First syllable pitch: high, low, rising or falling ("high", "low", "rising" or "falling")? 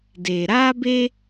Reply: low